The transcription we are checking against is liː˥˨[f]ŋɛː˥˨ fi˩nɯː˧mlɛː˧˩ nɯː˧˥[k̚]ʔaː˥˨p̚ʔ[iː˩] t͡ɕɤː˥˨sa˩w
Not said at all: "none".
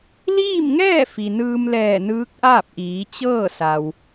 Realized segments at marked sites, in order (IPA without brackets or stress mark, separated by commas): m, k̚, iː˩˧